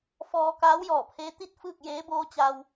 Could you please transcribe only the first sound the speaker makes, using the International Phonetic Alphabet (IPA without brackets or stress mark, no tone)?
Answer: f